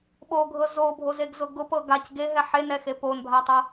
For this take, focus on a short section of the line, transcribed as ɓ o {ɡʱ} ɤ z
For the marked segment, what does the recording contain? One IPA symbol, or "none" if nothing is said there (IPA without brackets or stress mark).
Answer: ɡʱ